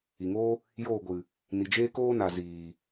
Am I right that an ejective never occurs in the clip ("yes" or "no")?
yes